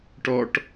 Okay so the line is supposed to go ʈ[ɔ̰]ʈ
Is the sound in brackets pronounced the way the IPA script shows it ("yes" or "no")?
no